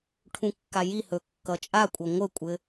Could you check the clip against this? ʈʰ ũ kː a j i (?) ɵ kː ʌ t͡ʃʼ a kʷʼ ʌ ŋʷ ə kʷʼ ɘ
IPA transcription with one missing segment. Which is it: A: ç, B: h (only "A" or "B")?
B